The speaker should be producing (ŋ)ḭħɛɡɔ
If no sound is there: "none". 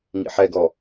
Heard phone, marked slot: ŋ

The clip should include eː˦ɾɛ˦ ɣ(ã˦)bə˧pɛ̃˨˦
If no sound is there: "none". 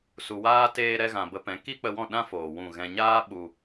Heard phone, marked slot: ã˨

